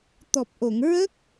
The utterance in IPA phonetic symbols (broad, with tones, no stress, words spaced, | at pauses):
t̪ɔ˨˩p̚ʔo˨˩˨ŋ ɹə˦˥k̚